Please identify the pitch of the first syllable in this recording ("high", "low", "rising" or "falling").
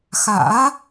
rising